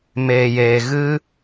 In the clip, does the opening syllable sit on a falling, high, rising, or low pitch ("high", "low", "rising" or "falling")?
low